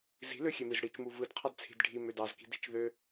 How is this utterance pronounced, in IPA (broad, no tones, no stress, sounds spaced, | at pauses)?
z i̤ l ø xʲ e m i z ɽ i t͡ʃ m u v ɯ d qʰ ɑ d t͡sʰ i̤ d ɖʱ i m ø d ɑ z k i̤ d i̤ t͡ʃ ð ø